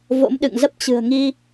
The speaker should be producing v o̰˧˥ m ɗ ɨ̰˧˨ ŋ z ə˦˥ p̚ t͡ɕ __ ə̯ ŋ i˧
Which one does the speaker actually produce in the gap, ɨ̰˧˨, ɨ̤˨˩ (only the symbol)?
ɨ̤˨˩